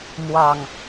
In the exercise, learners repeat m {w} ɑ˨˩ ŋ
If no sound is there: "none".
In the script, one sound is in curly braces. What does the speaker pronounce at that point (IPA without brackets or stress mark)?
w